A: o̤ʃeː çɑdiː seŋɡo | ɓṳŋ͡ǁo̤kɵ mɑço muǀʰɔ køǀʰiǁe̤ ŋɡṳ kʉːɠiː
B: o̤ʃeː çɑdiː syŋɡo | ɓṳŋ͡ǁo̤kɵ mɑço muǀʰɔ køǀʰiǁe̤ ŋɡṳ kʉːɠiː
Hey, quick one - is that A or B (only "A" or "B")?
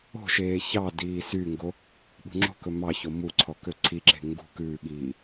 B